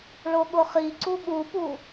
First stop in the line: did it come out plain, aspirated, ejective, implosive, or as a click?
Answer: implosive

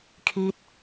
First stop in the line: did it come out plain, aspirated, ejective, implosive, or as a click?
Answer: aspirated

